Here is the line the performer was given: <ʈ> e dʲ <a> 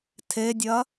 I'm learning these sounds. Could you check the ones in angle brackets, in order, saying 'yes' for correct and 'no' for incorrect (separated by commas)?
no, no